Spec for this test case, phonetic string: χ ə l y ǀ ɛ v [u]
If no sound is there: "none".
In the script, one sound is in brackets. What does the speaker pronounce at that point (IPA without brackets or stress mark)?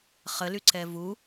u